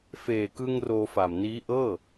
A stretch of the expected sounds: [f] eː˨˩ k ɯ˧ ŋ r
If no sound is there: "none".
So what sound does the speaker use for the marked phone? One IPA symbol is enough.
f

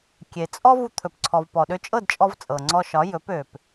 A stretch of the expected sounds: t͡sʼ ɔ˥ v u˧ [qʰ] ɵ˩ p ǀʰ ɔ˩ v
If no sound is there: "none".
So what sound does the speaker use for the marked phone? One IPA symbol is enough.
t̪ʰ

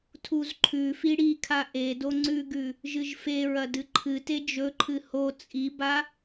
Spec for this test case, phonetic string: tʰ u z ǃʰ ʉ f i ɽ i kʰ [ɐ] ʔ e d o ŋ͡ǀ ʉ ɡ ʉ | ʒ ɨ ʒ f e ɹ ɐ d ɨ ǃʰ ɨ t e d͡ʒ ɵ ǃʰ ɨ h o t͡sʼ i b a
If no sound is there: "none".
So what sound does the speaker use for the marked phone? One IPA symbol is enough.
a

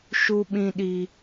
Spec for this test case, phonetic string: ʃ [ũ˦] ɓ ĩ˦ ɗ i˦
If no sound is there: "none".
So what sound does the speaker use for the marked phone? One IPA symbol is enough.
u˦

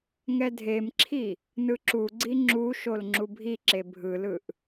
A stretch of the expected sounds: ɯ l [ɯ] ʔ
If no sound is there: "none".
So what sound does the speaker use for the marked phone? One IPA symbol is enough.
ɯ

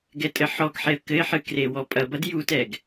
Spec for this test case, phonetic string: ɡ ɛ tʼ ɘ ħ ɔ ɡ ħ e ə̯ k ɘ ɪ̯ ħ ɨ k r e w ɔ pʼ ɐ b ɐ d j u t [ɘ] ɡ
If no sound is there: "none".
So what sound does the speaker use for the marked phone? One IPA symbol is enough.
ɛ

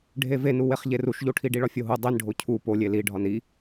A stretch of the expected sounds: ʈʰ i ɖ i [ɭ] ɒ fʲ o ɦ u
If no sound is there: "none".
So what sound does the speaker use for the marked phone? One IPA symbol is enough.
ɭ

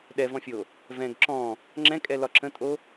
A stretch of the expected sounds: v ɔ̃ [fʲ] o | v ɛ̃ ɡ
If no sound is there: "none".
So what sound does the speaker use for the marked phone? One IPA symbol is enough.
fʲ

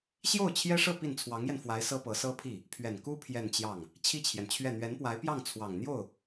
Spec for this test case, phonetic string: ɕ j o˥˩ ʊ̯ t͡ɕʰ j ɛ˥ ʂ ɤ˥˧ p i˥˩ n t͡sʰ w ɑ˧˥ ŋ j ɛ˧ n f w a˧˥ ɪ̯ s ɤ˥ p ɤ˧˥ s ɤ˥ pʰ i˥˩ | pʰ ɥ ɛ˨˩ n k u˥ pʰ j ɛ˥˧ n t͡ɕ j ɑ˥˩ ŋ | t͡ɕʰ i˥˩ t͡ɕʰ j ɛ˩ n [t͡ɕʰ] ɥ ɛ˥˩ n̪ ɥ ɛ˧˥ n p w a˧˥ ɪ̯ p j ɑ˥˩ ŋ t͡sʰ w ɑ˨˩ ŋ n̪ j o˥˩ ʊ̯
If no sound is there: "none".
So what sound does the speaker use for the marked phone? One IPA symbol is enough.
t͡ɕʰ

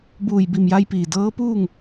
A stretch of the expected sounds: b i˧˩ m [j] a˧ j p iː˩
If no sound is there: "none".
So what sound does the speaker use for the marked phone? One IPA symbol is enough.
j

